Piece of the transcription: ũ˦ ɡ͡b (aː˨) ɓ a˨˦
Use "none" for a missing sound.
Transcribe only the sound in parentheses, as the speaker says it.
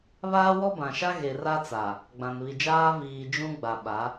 a˨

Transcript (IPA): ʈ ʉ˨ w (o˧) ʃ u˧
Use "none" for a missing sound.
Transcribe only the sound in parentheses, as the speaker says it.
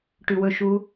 ɵ˧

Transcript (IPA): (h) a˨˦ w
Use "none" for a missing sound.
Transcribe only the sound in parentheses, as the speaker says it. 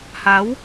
h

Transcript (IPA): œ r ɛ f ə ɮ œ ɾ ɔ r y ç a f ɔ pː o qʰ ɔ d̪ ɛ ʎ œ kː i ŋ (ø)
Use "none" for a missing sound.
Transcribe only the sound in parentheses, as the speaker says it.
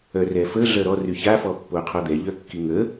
ə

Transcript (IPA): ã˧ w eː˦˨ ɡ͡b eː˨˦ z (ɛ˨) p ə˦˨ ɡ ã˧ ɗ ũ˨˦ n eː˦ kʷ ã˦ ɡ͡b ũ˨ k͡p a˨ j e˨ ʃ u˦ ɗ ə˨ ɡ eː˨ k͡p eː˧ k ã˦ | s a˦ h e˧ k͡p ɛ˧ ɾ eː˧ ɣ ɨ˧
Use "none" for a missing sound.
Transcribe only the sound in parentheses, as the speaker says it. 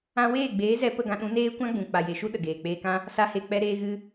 ɛ˧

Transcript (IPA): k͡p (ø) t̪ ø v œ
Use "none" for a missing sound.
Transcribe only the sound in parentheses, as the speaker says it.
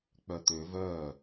œ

